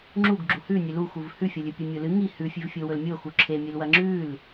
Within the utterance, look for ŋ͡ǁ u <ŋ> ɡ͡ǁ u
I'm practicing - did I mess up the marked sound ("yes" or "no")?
yes